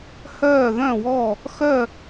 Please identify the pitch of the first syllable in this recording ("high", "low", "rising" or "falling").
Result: falling